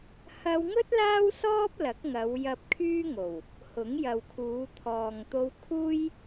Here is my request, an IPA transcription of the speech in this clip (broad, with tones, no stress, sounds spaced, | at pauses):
h ɐ˧ w ŋ ɵ˥ t̚ l aː˥ w s ɔː˥ p̚ l ɐ˨˥ k̚ ŋ ɐ˨˧ w j ɐ˧ p̚ kʰ yː˥ ŋ o˨˩ w | h ʊ˨˥ ŋ j ɐ˨ w kʰ uː˨˧ t̪ʰ ɔː˨ ŋ t̪ o˧ w kʰ uː˥ j